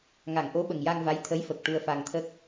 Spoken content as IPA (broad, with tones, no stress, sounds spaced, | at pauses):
ŋ a˨˩˨ ŋ ʔ o˧˥ ɓ ə˨˩ ŋ j a˧ ŋ v a˧˥ j t̪ʰ ə˧˥ j f ə˨˩ k̚ ʈ u˧ ə̯ f a˧ ŋ t̪ʰ ə˦˥ k̚